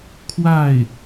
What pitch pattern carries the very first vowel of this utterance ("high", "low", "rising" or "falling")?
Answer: falling